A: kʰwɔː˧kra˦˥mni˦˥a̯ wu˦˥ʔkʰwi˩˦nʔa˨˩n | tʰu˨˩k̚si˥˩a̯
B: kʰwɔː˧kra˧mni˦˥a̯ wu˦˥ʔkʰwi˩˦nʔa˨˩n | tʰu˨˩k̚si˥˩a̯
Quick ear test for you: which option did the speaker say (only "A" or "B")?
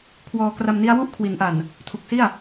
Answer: B